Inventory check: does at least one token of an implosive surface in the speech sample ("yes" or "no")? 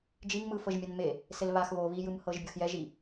no